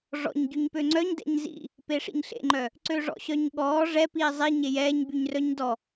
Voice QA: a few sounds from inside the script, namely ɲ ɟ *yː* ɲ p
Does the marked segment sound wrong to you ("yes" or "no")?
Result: yes